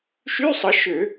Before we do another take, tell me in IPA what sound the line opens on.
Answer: ʃ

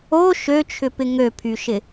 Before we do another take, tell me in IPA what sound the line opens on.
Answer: o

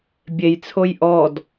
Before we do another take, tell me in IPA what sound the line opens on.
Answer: bʲ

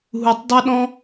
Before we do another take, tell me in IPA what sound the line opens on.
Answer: ɦ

